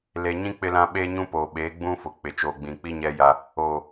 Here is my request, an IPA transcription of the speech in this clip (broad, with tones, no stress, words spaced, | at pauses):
le˨ɲĩ˦ k͡pɪ˦lã˦ ɓeː˦ɲũ˦poː˨ɓeː˨˦ ɡ͡bũ˦fʊ˨k͡pɪ˨ t͡ʃoː˨ɡ͡bĩ˨k͡pi˦ ɲɛ˦ja˦ | oː˨